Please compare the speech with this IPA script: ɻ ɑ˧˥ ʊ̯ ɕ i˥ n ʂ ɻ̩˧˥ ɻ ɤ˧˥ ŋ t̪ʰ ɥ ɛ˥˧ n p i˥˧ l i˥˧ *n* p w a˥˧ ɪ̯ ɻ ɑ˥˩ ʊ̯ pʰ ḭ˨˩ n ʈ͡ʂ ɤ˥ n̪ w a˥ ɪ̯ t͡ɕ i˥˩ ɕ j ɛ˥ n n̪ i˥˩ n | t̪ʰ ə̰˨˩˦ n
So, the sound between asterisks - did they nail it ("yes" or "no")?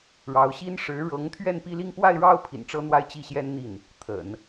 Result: no